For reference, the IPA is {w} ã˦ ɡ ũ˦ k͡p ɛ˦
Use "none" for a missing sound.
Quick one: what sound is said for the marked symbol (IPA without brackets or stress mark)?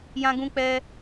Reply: j